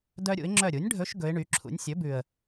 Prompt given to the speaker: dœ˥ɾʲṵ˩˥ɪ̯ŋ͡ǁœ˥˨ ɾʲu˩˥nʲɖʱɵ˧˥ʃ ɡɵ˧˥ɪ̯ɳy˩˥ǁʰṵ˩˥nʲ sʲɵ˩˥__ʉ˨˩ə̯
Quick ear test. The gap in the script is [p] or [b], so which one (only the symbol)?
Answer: b